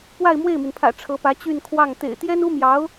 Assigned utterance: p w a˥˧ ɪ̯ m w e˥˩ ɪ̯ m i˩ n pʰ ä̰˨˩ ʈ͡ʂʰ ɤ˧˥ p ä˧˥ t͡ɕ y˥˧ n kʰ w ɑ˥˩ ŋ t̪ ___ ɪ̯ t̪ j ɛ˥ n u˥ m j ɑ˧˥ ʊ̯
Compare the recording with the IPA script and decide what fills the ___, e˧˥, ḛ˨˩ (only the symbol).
ḛ˨˩